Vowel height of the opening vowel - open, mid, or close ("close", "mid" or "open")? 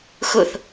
close